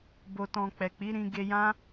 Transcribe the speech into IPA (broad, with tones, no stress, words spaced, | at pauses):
bo˨tɔ̃˨ k͡pɛ˨k͡pi˨˦ɾĩ˧ ɡe˧jã˦